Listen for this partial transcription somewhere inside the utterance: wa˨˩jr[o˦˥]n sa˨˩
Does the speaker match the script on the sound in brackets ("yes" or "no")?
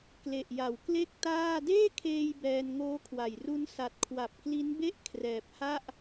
no